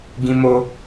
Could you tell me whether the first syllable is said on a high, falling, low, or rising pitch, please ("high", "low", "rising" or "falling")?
high